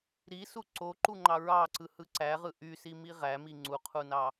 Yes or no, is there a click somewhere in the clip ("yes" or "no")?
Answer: yes